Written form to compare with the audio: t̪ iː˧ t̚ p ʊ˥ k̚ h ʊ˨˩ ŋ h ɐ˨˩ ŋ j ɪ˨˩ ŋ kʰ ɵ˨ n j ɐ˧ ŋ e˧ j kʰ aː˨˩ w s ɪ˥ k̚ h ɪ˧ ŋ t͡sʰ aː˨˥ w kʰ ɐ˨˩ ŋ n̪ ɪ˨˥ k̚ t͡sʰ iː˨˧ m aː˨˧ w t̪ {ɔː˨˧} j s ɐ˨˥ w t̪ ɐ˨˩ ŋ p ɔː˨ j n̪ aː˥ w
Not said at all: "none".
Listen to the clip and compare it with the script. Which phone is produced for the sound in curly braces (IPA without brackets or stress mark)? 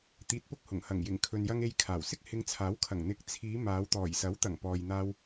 ɔː˨˩